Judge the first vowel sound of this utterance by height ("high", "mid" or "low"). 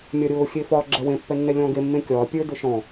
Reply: low